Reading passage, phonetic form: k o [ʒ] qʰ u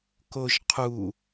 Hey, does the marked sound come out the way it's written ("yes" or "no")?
yes